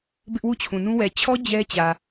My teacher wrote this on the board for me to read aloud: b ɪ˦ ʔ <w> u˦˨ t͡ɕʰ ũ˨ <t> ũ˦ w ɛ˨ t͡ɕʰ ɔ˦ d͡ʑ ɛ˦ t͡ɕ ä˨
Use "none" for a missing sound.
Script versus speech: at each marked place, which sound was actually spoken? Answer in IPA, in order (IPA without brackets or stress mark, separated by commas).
w, n